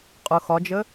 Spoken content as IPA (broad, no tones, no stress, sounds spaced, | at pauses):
qʼ ʊ x ɒ d͡ʒ ə